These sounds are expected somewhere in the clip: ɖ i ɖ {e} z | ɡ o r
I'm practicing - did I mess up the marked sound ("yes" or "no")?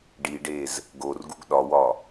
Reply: no